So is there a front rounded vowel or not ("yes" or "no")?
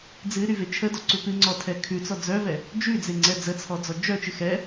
yes